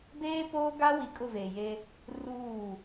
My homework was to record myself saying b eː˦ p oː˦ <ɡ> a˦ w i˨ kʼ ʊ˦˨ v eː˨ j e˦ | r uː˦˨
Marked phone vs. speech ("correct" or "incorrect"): correct